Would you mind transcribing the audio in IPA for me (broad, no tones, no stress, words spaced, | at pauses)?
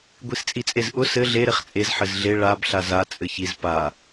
ɡʷist͡sʼit͡sʼezʔʊ sɘ ɮeɾeχ t͡sʼezħɘz ɮe ɭab ɬaza t͡sʼɘçiz pa